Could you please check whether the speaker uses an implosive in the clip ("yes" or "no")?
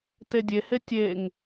no